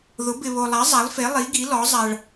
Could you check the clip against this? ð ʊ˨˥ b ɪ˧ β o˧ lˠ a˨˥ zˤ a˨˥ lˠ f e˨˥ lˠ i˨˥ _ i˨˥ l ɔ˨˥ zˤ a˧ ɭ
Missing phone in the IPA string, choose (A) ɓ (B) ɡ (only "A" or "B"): B